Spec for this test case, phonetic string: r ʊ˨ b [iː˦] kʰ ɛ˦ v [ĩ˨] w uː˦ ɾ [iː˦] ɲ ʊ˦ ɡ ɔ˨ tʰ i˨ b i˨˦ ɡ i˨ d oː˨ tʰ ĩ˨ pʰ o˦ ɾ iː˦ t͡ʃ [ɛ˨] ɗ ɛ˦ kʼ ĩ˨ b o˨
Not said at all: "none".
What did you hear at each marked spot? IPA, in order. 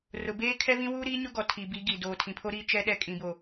eː˦, ĩ˦, iː˦, ɛ˦

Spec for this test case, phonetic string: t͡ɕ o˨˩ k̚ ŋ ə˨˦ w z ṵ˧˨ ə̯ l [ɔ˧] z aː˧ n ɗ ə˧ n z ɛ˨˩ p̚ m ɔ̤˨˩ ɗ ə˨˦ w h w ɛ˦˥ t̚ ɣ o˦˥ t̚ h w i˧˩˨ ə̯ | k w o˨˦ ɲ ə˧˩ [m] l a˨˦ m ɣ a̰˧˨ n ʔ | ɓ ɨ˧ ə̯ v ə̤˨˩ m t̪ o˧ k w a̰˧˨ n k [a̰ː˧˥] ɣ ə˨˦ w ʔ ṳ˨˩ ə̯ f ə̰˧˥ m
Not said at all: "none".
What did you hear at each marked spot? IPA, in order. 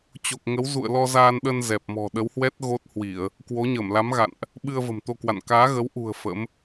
ɔ˧, m, aː˨˦

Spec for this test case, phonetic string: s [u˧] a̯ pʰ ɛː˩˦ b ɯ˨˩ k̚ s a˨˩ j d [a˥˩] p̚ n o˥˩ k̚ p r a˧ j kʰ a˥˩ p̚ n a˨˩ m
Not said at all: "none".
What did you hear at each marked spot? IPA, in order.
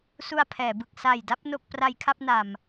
u˧, a˥˩

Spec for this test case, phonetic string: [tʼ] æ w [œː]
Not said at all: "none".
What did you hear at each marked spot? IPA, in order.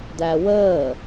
d, əː

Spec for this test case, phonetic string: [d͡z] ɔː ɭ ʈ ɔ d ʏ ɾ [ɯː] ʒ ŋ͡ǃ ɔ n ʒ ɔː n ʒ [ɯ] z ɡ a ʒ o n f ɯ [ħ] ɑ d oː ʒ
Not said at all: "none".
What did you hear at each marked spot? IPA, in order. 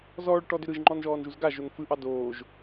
z, ɯ, u, ʔ

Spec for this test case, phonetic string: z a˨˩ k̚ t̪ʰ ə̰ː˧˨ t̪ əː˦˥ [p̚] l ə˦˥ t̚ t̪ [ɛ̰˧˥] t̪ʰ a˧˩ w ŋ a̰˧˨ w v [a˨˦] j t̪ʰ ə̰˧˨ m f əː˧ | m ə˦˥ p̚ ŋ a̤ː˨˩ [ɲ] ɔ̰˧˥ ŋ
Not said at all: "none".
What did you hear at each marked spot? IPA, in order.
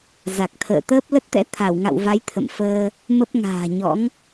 p̚, ɛ̰˧˥, a˨˦, ɲ

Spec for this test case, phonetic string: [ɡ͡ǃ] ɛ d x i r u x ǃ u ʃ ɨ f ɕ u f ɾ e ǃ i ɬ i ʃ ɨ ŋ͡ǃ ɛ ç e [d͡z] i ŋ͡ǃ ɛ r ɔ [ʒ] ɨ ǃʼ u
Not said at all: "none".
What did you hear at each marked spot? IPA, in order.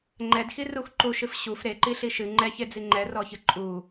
ŋ͡ǃ, d͡z, ç

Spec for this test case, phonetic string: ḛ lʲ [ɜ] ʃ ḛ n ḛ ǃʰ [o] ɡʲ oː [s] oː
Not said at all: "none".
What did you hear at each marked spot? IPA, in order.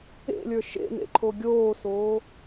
ə˞, o, s

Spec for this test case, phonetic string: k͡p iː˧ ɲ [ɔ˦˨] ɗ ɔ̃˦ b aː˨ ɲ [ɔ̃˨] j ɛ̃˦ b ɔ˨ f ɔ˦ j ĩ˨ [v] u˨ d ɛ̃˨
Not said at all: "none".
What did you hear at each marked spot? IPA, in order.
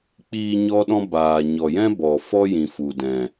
ɔ˦, ɔ˨, f

